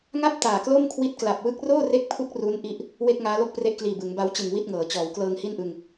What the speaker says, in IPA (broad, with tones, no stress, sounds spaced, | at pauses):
ŋ a˥˩ p̚ t aː˨˩ k l o˥˩ m kʰ w i˦˥ t̚ k l a˨˩ p̚ w ɯ˥˩ k̚ r oː˥˩ r e˦˥ k̚ pʰ u˦˥ k̚ r u˦˥ n ʔ i˥˩ ʔ | w e˥˩ k̚ ŋ aː˦˥ l o˥˩ k̚ p r e˦˥ ʔ k l iː˨˩ b ɯ˩˦ ŋ b a˦˥ w t͡ɕ ɯ˨˩ ŋ w i˥˩ t̚ ŋ ɤː˩˦ t͡ɕ ɔː˩˦ w k l ɤː˧ ŋ h i˥˩ n ʔ ɯ˧ ŋ